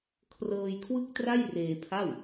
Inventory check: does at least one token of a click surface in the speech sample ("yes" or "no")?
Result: no